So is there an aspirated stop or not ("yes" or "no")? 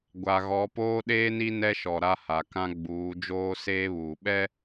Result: no